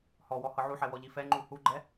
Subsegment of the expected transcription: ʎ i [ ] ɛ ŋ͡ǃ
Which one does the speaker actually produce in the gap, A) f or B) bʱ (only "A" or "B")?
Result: A